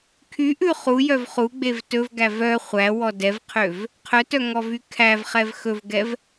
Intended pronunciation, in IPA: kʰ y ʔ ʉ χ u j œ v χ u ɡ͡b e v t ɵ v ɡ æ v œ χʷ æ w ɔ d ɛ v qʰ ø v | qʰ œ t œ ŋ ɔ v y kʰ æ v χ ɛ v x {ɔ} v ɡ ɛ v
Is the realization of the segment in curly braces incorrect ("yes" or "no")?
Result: yes